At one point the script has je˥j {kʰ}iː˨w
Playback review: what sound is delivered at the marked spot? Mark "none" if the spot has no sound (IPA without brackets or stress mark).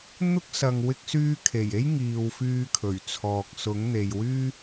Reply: ŋ